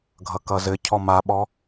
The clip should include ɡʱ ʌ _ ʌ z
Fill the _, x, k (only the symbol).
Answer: k